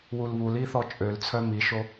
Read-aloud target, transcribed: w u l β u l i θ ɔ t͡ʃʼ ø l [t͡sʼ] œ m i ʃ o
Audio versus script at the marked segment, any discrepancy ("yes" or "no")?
yes